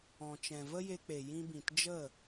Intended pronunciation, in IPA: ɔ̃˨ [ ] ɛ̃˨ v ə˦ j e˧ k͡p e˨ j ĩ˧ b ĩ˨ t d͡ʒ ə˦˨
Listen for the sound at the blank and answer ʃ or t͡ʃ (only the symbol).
t͡ʃ